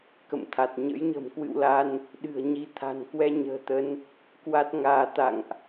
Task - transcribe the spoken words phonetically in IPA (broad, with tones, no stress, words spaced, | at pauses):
kə̰˧˨mt̪ʰa˨˩t̚ ɲə̰˧˥jɲə̤˨˩mkwɨ̰˧˨wla˧n | ɗɨ̤˨˩ə̯ɲi˨˦t̪ʰa̤˨˩nkwɛ˧ ɲə̤ː˨˩t̪ə˨˦n | kwa˦˥t̚ŋaː˧t̪a̰˧˨ŋʔ